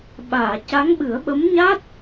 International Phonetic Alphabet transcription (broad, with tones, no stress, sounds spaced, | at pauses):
ɓ aː˨˩˨ c a˧˥ ŋ ɓ ɨ˨˩˦ ə̯ ɓ ə˧˥ m ɲ a˦˥ t̚